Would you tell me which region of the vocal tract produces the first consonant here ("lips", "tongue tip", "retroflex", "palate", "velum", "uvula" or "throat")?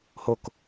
throat